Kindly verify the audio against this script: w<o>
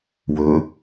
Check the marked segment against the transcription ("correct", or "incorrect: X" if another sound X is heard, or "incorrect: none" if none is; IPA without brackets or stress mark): incorrect: ɵ